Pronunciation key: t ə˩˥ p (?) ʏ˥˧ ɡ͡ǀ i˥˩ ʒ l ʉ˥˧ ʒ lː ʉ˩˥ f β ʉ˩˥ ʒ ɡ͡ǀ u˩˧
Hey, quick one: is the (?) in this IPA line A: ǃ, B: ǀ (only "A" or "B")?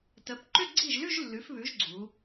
A